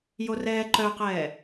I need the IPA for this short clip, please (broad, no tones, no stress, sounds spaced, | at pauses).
j o r ɛː ǃ œ q ɛː